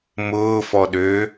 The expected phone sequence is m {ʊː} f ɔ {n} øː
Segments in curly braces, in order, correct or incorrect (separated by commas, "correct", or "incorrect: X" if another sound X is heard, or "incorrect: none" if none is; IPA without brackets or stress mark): correct, incorrect: ɗ